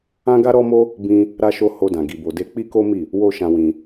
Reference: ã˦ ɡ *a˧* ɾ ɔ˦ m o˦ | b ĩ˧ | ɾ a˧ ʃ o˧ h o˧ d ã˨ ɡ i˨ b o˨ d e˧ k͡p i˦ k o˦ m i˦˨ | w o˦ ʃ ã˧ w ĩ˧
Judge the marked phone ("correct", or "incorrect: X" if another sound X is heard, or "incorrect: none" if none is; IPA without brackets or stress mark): incorrect: a˦